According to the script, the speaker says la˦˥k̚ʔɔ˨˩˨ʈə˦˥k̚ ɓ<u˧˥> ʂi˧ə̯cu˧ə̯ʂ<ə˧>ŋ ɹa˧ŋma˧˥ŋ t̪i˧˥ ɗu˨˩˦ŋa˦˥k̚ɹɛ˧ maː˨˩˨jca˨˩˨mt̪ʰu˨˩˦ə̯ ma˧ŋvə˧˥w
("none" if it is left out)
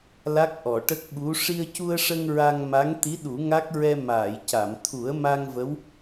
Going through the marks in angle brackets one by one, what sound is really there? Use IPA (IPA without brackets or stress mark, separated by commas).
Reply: u˧˥, ə˧